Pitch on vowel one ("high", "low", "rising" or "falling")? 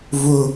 high